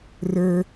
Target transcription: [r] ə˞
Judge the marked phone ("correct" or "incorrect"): correct